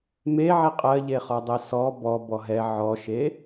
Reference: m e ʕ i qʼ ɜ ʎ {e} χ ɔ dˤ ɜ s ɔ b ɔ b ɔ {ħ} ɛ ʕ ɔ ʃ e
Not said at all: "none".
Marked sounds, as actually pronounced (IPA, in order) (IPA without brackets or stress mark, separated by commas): e, ɦ